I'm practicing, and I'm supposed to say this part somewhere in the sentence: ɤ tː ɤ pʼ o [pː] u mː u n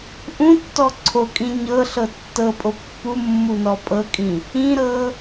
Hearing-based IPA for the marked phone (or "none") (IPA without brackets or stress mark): pː